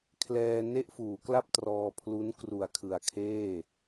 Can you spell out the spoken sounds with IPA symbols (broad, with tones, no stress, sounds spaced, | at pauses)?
kʰ l ɛː˧ n e˥˩ ʔ f uː˩˦ k l a˥˩ p̚ t r ɔː˧ pʰ l u˦˥ n k r u˨˩ a̯ kʰ ɯ˨˩ a̯ kʰ eː˥˩